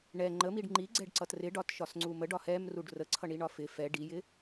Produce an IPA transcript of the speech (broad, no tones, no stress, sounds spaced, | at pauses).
ɳ ɛ ŋ͡ǃ ə m i ɖ ŋ͡ǃ i ɡ͡ǀ ɛ ɖ ǀ ʌ t r ɪ ɖ ɒ t ʃ ɒ s ŋ͡ǀ u m ə ɖ ɒ h ɛ m r u ɖ r ə ǀʰ ʌ ɳ i ɳ ɒ f ɪ f ɛ ɖ i j ɪ